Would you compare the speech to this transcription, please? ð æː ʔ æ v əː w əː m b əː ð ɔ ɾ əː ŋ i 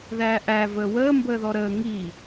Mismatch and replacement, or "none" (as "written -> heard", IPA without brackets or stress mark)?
none